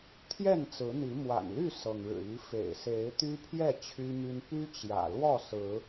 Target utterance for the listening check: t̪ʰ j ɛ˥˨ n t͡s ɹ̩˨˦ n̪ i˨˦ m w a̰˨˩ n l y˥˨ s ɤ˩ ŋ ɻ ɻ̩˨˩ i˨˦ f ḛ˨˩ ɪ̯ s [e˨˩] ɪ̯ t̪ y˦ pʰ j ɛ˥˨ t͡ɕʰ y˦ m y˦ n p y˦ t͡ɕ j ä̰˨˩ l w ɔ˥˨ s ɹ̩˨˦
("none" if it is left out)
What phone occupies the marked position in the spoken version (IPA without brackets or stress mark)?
e˨˦